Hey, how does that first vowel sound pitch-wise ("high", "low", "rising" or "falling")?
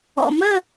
low